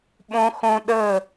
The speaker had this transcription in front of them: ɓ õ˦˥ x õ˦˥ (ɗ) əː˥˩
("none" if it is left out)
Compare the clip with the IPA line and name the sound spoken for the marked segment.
ɗ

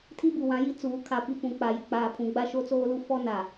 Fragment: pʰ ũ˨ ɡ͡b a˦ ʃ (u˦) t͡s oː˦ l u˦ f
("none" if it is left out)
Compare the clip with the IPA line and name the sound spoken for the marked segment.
o˦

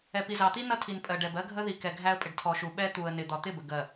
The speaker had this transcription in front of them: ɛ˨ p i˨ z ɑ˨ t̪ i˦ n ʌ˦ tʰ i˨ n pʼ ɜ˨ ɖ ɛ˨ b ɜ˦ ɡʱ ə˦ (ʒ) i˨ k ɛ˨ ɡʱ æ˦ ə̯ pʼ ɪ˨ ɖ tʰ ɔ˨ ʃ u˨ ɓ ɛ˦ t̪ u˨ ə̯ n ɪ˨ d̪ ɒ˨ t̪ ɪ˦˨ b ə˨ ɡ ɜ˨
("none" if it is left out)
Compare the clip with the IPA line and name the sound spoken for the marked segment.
ð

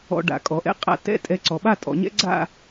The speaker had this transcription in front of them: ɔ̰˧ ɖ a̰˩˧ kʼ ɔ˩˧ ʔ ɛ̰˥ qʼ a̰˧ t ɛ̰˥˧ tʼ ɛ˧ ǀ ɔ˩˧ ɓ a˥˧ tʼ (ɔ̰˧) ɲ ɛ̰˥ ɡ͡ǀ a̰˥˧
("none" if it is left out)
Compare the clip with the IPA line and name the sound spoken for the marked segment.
ɔ̰˩˧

